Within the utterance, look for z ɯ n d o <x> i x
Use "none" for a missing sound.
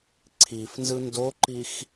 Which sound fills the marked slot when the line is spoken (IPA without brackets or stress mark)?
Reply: ǃ